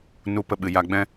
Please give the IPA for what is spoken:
n u˧ p ə˧ ɓ ɨ˨ j a˧ ɡ͡b ɛ̃˦

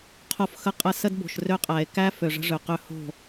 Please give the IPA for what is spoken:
qʰ o˨ f x ə˨ qʼ ə˨ s ə˦ d b o̤˨ ʃ r ø˦ qʼ æ˨ e̯ k æ˦ f ø˨ ʐ ə̤˦ ʐ ø˨ q ø˦ h o̤˦˨

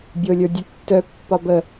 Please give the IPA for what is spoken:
bʲ o lʲ ə˞ dʲ ə tː œ pː ɒ b ə

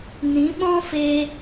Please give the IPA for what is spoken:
n ĩ˨˦ ɓ ɔ̃˦ f e˧

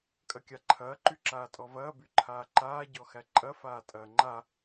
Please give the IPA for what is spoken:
kʼ ɐ kʲ a ǃʰ ɐː ǃ y ǁ aː tʼ ɔ v ɐː b y ǃʰ aː ǃ aː ɟ ɔ x æ ǃʼ ɐ f aː tʼ ɐː ŋ͡ǃ a

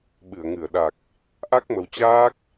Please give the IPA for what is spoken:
ɓ ɨ˧˩ ə̯ ŋ ɨ˧˩ ə̯ ɗ a˨˩ k̚ | ʔ a˦˥ k̚ m ə˨˩ w t͡ɕ aː˦˥ k̚

